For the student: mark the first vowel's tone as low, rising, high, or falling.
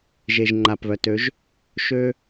low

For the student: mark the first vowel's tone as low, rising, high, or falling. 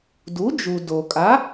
rising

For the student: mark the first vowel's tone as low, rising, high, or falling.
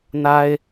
high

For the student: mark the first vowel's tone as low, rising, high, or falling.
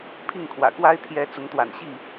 falling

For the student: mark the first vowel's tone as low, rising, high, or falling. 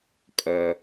low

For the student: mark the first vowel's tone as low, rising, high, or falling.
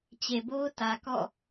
low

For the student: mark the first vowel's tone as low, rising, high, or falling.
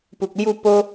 low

